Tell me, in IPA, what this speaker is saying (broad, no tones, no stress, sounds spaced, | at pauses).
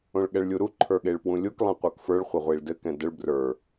õ ɭ ɠ ɛ ɭ lʲ u ɾ u ǃʰ ə˞ ɠ e ɭ p w ũ lʲ o k lˠ ẽ qʷ ə˞ k f ə˞ ɭ χʷ ə ʁʷ i ɭ d ɘ k ɛ̃ d ə ɭ b r ə˞